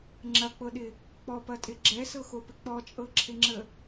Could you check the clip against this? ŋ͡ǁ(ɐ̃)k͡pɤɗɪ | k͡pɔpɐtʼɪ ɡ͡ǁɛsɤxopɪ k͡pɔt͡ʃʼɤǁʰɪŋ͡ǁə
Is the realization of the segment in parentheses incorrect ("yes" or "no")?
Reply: yes